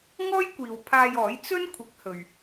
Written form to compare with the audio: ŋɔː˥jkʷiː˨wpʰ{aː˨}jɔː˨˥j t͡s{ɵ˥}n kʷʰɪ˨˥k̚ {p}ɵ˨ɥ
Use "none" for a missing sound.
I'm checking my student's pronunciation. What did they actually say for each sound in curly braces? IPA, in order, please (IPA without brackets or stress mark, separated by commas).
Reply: aː˧, ɵ˥, h